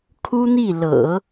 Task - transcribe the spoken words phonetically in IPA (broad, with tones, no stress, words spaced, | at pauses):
kʰu˥n̪i˥˩ lɤ̰˨˩˦